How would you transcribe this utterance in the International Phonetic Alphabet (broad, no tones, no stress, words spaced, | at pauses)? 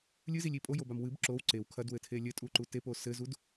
lʲɨzilʲi pʼojobam wɨb ǁow ǀew kʰɐdwɘtʰe lʲɘtʼuǃu tepo sɘzud